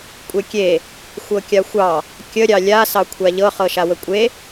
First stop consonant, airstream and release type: ejective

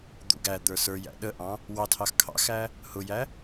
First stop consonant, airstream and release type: plain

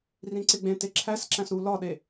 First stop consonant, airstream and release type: click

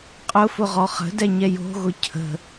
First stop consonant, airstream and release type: ejective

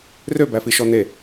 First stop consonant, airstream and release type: plain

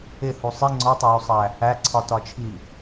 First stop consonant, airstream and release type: click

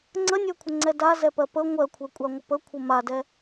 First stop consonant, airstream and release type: click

